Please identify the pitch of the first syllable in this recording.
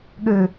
low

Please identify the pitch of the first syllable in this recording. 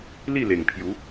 falling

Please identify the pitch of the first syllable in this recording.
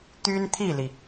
high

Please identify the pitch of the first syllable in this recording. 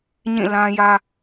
falling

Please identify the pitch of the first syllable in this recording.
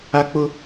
high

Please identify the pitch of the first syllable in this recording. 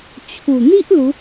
low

